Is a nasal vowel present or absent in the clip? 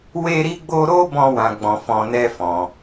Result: present